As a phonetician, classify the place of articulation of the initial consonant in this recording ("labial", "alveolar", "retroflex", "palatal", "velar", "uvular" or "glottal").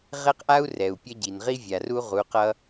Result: uvular